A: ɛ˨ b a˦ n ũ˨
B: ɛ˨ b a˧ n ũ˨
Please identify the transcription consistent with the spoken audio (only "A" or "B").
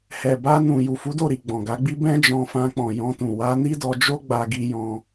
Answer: B